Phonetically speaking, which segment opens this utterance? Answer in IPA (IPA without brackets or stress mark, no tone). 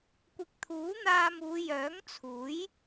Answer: kʷ